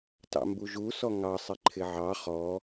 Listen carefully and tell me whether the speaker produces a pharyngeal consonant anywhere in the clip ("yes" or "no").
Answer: yes